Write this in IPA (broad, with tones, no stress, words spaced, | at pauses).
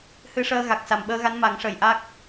hɨ˧ʂəː˧ ɣa˨˩k̚sa˨˩mɓəː˧ɣa˧˥n ma˨˩˦ŋʂə˨˩jʔa˦˥k̚